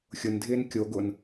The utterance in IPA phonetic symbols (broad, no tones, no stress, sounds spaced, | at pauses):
xʲ ʊ n dʱ ɪː n kʲ o ɡ ʊ n